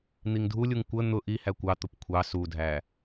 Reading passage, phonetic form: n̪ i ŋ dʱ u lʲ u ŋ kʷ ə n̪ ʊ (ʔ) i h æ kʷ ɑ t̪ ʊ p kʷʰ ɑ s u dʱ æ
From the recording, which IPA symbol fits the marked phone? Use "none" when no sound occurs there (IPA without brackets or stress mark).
ʔ